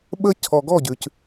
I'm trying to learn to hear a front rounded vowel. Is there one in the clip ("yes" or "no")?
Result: no